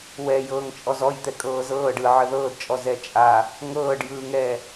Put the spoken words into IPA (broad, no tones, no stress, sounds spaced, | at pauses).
w ɛ j ɤː ŋ t͡ʃʼ ɔ z ɔ j t̪ ɛ kʼ ɤː z ɤː ɖ ɯ ʕ ə ð ɤː d t͡ʃʼ ɔ z ɛ t͡ʃʼ a | ŋ ɤː ɖ j ɯː ŋ ɛː